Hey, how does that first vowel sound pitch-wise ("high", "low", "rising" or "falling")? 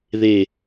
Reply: low